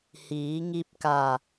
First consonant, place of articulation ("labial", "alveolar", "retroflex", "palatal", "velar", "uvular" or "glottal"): glottal